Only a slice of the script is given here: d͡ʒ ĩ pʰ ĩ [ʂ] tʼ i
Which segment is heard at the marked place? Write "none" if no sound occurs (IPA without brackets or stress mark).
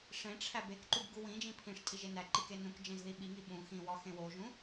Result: ʂ